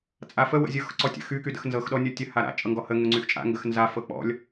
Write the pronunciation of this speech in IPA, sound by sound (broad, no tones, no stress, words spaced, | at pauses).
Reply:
t͡sʼafə wə̰zʲɤx ǀɔtʲə̰xy kydə̰xnzɤx ɗɔnʲɔtʲə haɾa̰ t͡ʃʼɤŋɡɔhə ŋʊŋ͡ǀyxt͡ʃʼa̰ŋɡəx nza fɤk͡pɔ̰lʲ